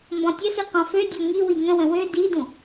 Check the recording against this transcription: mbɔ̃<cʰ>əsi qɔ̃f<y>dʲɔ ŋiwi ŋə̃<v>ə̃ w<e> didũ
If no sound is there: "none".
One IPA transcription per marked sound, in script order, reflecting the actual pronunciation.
tʲ, ø, w, ø

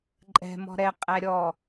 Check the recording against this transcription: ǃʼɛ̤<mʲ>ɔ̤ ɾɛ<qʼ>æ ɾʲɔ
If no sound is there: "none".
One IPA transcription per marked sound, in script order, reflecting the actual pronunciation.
m, qʼ

